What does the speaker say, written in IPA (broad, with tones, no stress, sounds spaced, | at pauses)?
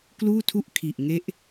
k l uː˥˩ tʰ u˥˩ ʔ kʰ i˨˩ ʔ ŋ e˥˩ ʔ